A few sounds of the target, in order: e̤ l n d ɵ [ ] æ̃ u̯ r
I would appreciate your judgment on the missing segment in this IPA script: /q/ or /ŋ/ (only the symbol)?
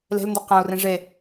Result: q